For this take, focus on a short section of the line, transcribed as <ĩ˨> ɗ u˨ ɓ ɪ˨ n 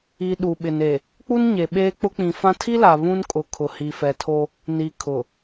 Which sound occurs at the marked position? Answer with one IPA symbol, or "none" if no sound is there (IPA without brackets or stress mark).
i˨